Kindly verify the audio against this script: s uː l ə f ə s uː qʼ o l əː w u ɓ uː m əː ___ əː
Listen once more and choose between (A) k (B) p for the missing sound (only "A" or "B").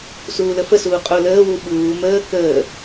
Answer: A